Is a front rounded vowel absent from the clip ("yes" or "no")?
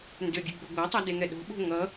no